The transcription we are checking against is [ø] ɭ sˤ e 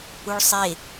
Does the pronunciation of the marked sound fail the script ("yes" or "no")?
yes